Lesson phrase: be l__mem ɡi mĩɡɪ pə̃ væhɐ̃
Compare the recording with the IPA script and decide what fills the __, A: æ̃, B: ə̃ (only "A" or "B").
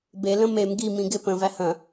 B